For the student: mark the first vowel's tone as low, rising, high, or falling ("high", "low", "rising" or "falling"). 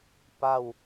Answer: falling